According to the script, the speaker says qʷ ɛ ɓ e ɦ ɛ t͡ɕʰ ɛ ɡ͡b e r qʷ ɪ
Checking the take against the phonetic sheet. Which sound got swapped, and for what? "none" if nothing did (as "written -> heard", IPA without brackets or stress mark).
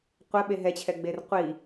ɪ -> i